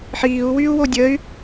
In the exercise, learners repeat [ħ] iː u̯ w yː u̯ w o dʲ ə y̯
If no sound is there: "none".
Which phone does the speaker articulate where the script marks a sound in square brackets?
ħ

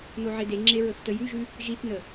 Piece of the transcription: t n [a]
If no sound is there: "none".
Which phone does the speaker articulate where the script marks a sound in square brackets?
ə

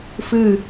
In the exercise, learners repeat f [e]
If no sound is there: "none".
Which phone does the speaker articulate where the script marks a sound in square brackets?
ɨ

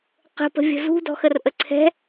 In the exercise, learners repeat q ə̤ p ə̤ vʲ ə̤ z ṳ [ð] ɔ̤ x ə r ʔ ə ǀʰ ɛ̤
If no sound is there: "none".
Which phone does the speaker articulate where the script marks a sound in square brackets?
d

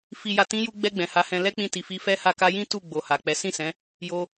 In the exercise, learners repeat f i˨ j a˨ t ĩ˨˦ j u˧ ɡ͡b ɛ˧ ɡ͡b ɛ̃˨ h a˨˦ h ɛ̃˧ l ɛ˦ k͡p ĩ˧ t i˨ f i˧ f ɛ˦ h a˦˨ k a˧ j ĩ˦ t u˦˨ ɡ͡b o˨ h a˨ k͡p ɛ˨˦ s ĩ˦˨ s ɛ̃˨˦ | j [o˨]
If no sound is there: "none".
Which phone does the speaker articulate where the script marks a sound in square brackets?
o˧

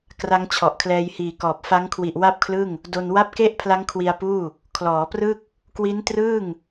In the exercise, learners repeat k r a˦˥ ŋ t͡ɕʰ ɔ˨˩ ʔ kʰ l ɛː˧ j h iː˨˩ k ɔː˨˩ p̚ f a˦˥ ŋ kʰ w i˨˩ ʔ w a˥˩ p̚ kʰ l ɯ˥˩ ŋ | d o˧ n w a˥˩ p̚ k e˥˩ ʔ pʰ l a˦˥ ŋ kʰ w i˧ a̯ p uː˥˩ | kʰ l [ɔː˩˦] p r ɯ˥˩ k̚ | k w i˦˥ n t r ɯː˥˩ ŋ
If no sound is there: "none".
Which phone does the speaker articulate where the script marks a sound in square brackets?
ɔː˩˦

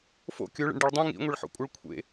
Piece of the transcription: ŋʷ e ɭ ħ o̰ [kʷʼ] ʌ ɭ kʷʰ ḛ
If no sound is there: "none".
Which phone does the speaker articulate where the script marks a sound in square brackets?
kʷʼ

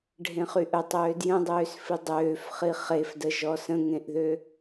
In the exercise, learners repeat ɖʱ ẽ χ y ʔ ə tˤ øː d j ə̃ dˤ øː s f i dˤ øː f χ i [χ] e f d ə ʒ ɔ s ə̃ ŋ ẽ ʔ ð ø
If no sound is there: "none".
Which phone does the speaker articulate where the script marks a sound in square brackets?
χ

